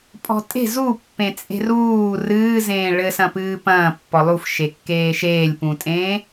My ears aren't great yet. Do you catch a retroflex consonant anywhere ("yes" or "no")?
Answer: yes